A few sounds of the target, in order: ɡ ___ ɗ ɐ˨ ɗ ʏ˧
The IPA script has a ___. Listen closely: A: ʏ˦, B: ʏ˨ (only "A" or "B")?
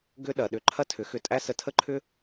A